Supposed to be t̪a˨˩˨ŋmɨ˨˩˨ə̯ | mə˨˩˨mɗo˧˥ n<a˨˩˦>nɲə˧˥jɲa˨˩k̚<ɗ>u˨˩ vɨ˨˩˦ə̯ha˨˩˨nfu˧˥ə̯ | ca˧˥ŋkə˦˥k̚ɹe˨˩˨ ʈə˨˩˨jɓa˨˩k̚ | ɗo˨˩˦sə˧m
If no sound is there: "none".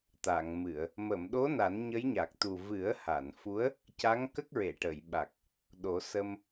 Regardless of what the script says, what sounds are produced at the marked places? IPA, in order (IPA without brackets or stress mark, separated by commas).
a˨˩˦, t̪